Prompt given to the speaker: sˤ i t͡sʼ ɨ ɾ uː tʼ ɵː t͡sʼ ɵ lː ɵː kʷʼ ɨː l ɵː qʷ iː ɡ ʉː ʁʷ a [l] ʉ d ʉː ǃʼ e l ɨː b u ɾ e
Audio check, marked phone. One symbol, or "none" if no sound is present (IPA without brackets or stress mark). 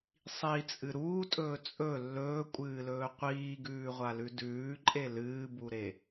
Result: l